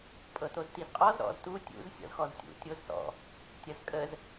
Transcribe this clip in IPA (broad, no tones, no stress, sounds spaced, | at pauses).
pʼ ɤ t o z t i z qʼ ɔ z ɾ ɔ̰ z t u tʲ ṵ z sʲ ɔ̰ z x ɔ z tʲ ṵ tʲ o z s ɔ̰ | tʲ ɐ z kʼ ə z